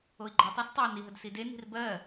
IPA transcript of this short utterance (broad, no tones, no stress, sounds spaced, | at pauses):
o i̯ ɡ͡ǃ ɜ tˤ æ s tˤ ɑ n i ɦ ə d s i d e n i̤ r b ɜ